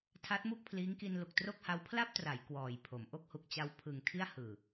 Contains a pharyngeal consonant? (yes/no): no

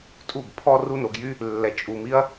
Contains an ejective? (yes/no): yes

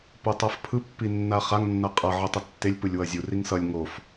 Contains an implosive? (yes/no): no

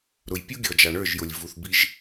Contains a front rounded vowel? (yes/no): no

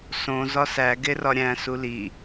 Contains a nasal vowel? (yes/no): yes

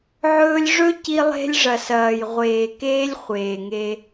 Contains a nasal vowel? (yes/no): no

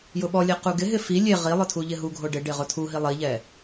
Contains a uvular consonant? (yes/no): yes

